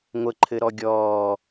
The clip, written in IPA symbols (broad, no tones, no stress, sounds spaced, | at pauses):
ŋʷ ə ǃʰ ɘ ɾ ɔ ɡʲ ɔː